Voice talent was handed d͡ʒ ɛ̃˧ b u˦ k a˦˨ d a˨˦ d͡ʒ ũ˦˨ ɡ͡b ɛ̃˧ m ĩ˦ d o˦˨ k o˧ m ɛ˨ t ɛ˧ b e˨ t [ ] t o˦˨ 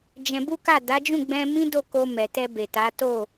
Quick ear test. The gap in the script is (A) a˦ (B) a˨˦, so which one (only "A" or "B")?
B